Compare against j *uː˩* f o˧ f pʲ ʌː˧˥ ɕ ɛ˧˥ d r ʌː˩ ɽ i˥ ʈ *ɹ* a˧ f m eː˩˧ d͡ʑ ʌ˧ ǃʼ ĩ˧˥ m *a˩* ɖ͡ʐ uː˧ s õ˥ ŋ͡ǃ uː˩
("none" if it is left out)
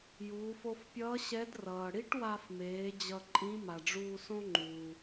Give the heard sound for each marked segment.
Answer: uː˩˧, w, a˩

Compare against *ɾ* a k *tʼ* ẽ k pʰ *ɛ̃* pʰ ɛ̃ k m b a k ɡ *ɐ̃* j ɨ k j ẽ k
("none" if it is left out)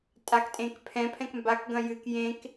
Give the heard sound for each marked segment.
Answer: tʼ, tʼ, ɛ̃, ɐ̃

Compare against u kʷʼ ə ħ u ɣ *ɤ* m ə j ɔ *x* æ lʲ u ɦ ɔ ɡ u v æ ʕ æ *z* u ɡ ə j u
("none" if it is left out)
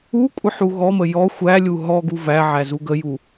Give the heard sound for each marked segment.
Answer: ɔ, xʷ, z

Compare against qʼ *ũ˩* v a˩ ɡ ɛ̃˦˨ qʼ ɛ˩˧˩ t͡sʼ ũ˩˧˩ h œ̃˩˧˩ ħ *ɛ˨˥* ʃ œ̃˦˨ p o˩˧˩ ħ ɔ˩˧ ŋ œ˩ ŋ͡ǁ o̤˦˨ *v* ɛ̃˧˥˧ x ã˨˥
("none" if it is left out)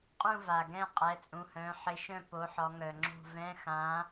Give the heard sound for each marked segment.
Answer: ũ˦˨, ɪ˨˥, v

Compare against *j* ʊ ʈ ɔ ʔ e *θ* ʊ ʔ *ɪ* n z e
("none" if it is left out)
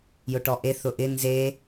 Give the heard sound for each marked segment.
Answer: j, θ, ɪ

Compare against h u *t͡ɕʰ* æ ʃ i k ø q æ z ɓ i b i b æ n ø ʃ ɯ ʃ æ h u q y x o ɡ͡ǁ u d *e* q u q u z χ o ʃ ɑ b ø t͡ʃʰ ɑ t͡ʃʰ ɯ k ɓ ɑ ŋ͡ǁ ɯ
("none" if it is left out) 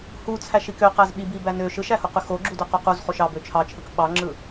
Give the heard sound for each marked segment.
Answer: t͡sʰ, ø

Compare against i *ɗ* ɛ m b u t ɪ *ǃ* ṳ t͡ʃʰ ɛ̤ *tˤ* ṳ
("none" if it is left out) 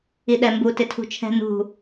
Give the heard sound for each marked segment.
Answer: ɗ, tʰ, n

